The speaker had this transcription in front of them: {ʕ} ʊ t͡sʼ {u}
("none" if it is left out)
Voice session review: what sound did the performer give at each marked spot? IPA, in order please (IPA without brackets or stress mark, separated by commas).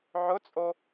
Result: ʕ, o